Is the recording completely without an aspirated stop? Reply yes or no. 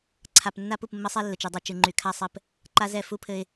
no